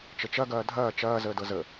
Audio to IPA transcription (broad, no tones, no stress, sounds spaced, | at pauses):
t͡ʃ ə t͡ʃ ɐ ɡ ɐː dʱ ɐː t͡ʃ ɐː z əː d ɤ z ə